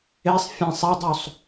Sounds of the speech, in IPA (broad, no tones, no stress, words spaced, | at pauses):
esˤ fʲẽsˤ edˤusˤ